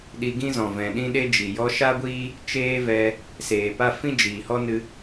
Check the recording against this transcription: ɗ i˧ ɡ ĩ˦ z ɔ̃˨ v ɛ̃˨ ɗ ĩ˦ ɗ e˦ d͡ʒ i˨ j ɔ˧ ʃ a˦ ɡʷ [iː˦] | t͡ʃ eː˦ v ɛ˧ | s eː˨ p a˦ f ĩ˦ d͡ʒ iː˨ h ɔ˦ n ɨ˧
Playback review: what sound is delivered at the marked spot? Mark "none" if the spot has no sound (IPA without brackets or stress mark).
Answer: iː˦